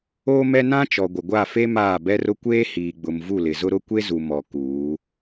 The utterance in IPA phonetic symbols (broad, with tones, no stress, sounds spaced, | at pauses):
oː˦ m ɛ˦ n ã˦ t͡ʃ ɔ˨ ɡʷ ɪ˨ ɡʷ a˦˨ f e˦ m aː˦˨ b ɛ˦ r ʊ˦ kʷ eː˦ h iː˨ ɡ͡b ʊ˨ m v u˦˨ l ɪ˨ z ʊ˦ ɾ ʊ˦ kʷ e˦ z u˨ m ɔ˨ k uː˨˦